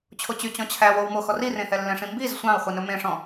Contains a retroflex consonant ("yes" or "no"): yes